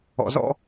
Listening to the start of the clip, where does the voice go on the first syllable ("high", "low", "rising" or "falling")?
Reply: low